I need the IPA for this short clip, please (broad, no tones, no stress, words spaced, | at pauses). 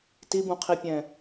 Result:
tibũqʰipʲɛ̃